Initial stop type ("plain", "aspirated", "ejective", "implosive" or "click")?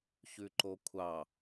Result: click